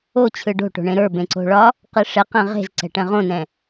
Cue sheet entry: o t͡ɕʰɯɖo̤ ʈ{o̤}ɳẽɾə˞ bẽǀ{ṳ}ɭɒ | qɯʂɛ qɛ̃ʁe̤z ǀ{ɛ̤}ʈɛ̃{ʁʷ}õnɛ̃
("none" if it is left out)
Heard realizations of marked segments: o̤, o̤, ɛ̤, ʁ

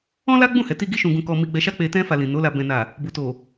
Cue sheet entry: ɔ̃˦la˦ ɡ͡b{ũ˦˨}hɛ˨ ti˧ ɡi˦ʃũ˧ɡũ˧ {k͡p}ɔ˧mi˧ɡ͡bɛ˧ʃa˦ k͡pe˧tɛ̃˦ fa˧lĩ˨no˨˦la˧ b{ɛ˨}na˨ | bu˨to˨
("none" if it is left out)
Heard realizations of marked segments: ũ˦˨, k, ɛ̃˨

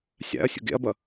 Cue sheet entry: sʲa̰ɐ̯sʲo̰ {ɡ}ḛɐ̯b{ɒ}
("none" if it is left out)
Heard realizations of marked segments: ɡ, ʌ

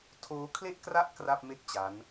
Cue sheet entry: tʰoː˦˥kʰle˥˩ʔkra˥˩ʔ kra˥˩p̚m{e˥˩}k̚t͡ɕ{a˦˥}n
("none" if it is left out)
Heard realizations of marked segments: e˥˩, a˦˥

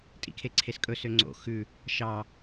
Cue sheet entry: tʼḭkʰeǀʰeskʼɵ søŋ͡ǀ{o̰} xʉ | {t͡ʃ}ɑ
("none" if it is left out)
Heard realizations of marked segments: o̰, ʃ

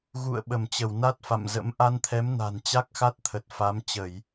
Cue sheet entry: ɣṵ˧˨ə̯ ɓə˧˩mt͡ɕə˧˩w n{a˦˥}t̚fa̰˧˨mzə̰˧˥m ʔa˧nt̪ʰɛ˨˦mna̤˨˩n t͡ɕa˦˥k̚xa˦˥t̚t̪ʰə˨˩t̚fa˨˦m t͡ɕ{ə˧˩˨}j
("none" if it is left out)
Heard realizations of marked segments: a˦˥, ə˧˩˨

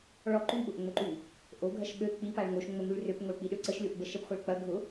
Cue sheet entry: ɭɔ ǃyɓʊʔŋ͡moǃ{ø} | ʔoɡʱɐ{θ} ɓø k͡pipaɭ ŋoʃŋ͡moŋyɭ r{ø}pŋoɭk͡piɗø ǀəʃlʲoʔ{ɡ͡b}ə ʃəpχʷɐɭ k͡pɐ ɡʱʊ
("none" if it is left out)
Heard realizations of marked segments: y, ʃ, ø, b

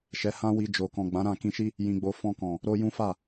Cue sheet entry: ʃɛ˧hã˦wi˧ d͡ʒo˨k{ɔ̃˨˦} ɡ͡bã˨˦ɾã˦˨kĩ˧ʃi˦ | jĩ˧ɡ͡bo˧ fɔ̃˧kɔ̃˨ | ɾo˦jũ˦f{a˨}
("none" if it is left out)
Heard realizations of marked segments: ɔ̃˨, a˦˨

